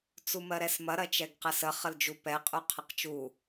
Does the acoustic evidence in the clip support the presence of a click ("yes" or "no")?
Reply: no